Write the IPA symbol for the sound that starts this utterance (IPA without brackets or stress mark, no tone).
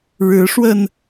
ɻ